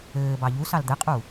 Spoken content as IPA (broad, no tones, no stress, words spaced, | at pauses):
ɘː bɑʎusɑl d̪ɘqʼu